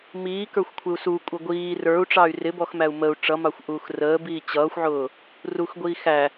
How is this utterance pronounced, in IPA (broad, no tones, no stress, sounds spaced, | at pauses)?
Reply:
m iː k ə˞ xʷ kʷʰ ɪ u̯ s u kʷʼ ə ɡʷ iː r ə˞ u̯ ʈ͡ʂ ɑ y̯ r ɪ b ɔ x m æ u̯ m ə u̯ ʈ͡ʂ ʌ m ɑ xʷ ʔ uː x r əː b iː t͡ɕ ʌː xʷ ʕ ʊː | r u x ɡʷ iː x æ